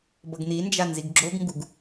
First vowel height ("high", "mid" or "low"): mid